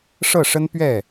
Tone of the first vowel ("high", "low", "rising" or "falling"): falling